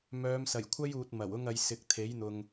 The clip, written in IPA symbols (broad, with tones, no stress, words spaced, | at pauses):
mœː˨˧msɐ˨˩jkʷʰɐ˥juː˨t̚ mɐ˨˩wʊ˥ŋ ɐ˨˧jsɪ˨k̚ t̪ʰe˨˥jn̪ʊ˨ŋ